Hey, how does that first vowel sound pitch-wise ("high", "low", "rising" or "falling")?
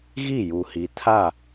falling